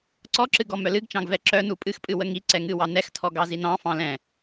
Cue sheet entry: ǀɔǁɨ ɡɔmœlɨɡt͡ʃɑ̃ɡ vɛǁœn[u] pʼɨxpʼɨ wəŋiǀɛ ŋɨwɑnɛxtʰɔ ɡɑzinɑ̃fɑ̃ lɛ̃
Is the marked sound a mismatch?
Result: no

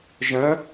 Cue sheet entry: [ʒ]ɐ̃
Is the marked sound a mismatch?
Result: no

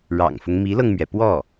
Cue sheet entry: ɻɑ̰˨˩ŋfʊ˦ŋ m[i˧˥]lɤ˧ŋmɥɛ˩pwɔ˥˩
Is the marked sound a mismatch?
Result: no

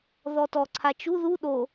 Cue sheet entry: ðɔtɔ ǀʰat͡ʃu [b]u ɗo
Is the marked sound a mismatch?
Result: yes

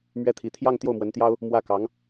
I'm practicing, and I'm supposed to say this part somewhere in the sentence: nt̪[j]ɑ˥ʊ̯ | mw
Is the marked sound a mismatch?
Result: no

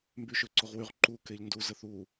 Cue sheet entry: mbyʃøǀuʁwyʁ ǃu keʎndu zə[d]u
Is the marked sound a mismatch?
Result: yes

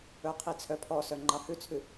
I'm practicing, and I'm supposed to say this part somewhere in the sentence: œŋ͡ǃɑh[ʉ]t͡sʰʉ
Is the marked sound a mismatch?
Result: no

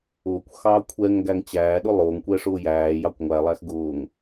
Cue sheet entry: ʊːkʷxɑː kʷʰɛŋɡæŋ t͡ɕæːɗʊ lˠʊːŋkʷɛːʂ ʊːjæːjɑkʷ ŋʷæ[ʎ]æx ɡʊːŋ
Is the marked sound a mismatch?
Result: yes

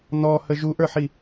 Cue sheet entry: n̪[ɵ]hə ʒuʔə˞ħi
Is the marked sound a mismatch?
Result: yes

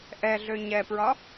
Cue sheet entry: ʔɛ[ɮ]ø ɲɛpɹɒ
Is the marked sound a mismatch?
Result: no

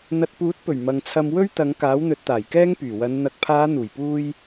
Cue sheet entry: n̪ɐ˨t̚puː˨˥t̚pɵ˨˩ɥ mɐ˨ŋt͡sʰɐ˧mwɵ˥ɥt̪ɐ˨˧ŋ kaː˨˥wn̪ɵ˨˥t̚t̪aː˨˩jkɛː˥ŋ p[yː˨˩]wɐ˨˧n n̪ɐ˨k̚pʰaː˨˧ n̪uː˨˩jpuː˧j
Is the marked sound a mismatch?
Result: no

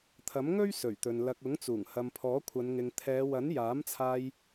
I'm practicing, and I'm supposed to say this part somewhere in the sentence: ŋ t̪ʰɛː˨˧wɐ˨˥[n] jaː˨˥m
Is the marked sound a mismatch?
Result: no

